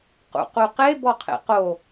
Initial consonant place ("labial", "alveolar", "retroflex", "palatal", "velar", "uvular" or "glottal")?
uvular